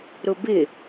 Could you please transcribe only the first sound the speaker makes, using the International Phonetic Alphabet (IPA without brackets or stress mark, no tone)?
ɾ